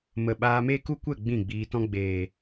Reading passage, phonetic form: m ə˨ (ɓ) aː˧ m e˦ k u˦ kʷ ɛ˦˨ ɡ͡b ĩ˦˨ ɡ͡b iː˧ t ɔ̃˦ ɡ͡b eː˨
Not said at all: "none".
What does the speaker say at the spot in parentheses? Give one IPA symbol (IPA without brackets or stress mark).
ɓ